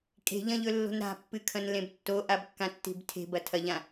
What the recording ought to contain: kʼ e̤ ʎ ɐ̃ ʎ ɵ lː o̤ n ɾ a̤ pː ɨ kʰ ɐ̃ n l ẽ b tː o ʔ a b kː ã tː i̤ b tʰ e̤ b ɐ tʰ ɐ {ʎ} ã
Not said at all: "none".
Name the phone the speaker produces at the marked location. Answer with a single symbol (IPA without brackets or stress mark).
ʎ